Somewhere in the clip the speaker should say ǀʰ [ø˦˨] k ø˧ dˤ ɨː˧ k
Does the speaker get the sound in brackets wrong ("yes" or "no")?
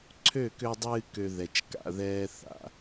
no